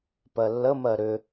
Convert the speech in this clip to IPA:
p ɜ lː ə m ɜ ɾ ʏ

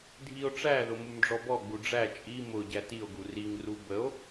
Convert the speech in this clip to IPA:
dʱ i o̯ ʈ͡ʂ æ ð ʊ m u m ɖ͡ʐ ɔ b ɔ ɡ͡b u ɖ͡ʐ æ t͡ʃʼ i m ʊ ɟ æ t i o̯ ɡ u r i ŋ r u b ə o̯

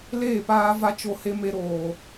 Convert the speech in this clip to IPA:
l eː˦˨ p aː˦ v a˦ t͡ʃ o˦ h e˦ m e˦ ɾ oː˦

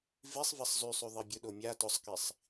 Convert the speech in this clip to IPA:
v i sˤ v e sˤ z y sˤ y ðˤ i bʲ ʊ ɗ o mʲ a t ʊ sˤ k i sˤ

